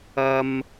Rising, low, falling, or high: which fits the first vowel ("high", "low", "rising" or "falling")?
high